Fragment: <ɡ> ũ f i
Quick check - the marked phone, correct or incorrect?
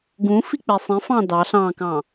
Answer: correct